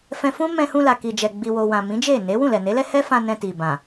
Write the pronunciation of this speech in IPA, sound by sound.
f ɛ̃˧ f ũ˦ m ɛ̃˧ h ũ˧ l a˨ k i˨ d͡ʒ ɛ˨ ɡ͡b i˨ w o˨ w ã˨ m ĩ˨˦ d͡ʒ e˦˨ n e˨˦ w ũ˦˨ l ɛ˨ n e˨˦ l ɛ˦ h ɛ˦ f ã˧ n ɛ̃˧ t i˨ b ã˨

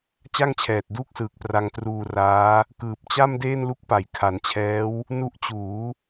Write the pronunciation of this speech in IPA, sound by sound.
t͡ɕ a˥˩ ŋ t͡ɕʰ ɛː˨˩ t̚ d uː˥˩ k̚ s ɯː˨˩ k̚ p r a˧ ŋ t r uː˧ r aː˦˥ | k ɯː˨˩ p̚ t͡ɕ a˥˩ m d eː˥˩ n l u˦˥ k̚ p a˩˦ j kʰ a˩˦ n t͡ɕʰ ɛː˦˥ w | n u˦˥ ʔ t͡ɕ uː˩˦

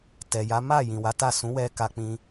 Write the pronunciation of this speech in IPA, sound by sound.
t ɛ˨ j a˨˦ m a˦˨ j ĩ˨ w a˨˦ t a˦˨ s ũ˨˦ w ɛ˧ k a˧ k͡p ĩ˧

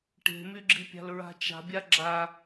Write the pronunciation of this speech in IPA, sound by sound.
ʈ e̤ m y ɡ͡ǁ i pʲ a̤ l ɹ a̤ t͡ʃ a̤ bʲ a ɡ͡ǁ a

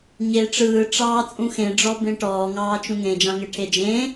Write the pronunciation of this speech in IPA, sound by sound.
ɲ e ʈ͡ʂ ɯː ʈ͡ʂ ɑː t͡sʼ ũ x ẽ ɖ͡ʐ ɔ b ẽ ʈ ɔː ŋ ɑː t͡ʃ ũ ŋ ẽ d͡ʒ ɑ̃ ŋ e ʈʰ e d͡ʒ ẽ

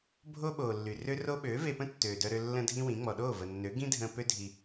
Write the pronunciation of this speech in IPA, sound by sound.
bʱ o˦ ɓ oː˨ lː y˨ r ø˦ r o˦ ɓ øː˨˦ v e˧ p ə̃˦ tː øː˨ d œ˧ ɾ ø˧ lː ə̃˦ dʱ ĩ˦ w ĩ˨˦ ŋ͡m ɔ˨ ɗ oː˦˨ v ə˨ nː ø˨˦ ɡ ĩ˦ dʱ ə̃ː˧ p ø˦ dʱ i˧

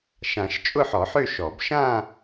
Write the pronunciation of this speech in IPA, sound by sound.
ʃ ã˨˩˦ ʃ t͡ʃʼ ʊ˥˧ ħ ɔ˨˩˦ ħ ø˥˧ ʃ ɔ˨˩˦ b ʃ ã˥˧

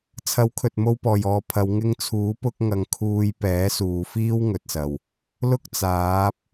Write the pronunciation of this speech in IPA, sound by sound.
t͡sʰ ɐ˨˥ w kʰ ɵ˨ t̚ m o˧ w p ɔː˨˩ j ɔː˨ pʰ ɐ˨˧ w ŋ ɪ˧ ŋ t͡sʰ uː˨˥ p ʊ˥ k̚ ŋ ɐ˧ ŋ kʰ uː˧ j p ɛː˨˥ s uː˨ f iː˥ w ŋ ɵ˨ t̚ s ɐ˨˩ w | l ʊ˥ k̚ t͡s aː˨˥ p̚

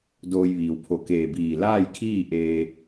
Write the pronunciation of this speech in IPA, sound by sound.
d oː˧ j ʋ iː˩ w pʰ o˧˩ k eː˧˩ b iː˧˩ l aː˥˨ j kʰ iː˥˨ ʔ eː˧

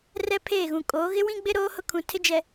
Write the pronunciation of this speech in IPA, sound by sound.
r ɛ˦ pʰ eː˦˨ ɣ ũ˨ kʼ oː˨˦ ɣ ɪ˦ w ĩ˦ ɡ͡b ɪ˦ ɾ oː˦ h ʊ˦ kʰ ũ˨ tʰ ɪ˦ d͡ʒ ɛ˨

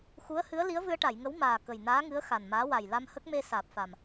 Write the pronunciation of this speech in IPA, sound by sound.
x u˧˥ ə̯ h ɨ˧˥ ə̯ l i˧˥ ə̯ v ɨ˧ ə̯ ʈ a˨˩˨ j ŋ ə˧˥ w m aː˨˩ k ə˨˩ j n aː˧˥ ŋ ɨ˧˥ ə̯ x a˨˩ n m aː˧˥ w a˨˩ j l a˧ m h ə˦˥ k̚ m e˧ s aː˨˩ p̚ f a˨˩ m

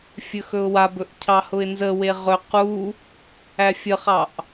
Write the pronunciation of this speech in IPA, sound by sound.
fʲ ɵ x ɵ ʊ̯ w a b ɵ ʔ cʰ ɑ h ʊ ɪ̯ n z ə w e ʁ ɵ q u | æ fʲ ə χ ɑ ʔ

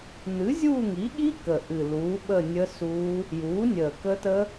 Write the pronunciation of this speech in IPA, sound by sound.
n̪ ɨ˩˥ zʲ uː˦˨ ŋ i˩˥ ɠ i˦˥ k ə˨˩ ʔ ɨ˨˩ l uː˩˥ ɓ ə˦˨ nʲ ə˦˥ s uː˦˥ | j uː˩˥ nʲ əː˨˩ k ə˦˥ t ə˦˥

